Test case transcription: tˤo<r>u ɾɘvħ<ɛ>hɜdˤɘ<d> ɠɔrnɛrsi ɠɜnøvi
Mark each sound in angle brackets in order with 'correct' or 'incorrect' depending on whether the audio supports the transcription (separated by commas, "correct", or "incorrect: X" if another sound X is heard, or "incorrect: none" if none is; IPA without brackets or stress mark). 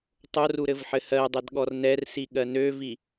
correct, incorrect: ɘ, correct